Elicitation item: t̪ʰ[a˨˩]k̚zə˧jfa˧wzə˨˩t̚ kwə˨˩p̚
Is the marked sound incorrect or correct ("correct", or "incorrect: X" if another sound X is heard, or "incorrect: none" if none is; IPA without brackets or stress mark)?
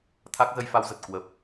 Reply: incorrect: a˦˥